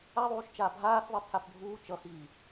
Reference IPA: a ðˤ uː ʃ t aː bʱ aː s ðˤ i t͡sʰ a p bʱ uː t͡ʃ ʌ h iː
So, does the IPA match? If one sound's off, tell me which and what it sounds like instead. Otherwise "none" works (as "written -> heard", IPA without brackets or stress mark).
t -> t͡ʃ